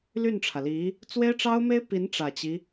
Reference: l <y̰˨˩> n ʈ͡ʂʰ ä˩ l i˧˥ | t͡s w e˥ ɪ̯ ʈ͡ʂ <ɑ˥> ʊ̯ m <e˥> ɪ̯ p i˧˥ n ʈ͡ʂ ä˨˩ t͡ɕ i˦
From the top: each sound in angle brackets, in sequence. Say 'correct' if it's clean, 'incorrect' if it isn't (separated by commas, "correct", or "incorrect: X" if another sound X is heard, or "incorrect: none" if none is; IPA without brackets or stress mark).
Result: incorrect: y˥˩, correct, correct